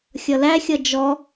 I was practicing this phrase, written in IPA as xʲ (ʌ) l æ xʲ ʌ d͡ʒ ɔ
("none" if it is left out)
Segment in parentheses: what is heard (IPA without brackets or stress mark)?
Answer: ʌ